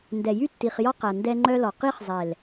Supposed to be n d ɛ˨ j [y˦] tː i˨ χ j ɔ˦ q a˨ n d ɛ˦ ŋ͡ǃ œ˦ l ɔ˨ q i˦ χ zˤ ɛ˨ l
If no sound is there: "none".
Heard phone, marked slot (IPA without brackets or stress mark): y˦